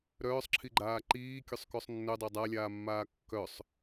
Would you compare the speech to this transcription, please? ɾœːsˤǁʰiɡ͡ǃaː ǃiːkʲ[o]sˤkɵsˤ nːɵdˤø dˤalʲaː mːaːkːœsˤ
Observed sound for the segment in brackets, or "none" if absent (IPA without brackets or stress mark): ɵ